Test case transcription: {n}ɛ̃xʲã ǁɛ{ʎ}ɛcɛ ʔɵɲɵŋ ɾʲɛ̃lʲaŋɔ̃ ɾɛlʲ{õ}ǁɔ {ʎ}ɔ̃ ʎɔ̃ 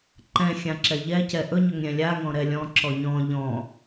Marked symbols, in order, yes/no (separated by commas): no, yes, no, no